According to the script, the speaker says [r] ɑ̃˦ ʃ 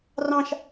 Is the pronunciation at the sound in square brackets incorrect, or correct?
correct